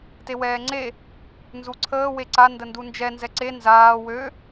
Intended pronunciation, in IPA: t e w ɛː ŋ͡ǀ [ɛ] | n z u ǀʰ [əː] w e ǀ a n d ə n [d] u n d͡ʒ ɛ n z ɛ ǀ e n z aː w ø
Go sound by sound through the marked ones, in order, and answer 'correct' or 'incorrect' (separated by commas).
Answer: incorrect, correct, correct